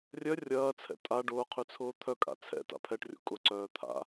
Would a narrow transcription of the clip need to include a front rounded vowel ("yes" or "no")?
yes